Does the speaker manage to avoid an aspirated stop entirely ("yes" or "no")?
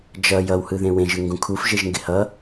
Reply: no